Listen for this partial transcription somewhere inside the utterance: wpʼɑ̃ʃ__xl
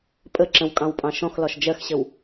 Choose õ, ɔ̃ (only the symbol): ɔ̃